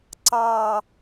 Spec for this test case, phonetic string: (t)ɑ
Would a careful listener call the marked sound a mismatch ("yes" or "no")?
yes